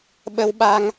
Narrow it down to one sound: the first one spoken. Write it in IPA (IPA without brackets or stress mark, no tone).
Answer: ɓ